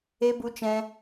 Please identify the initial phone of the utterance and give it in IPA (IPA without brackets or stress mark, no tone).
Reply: e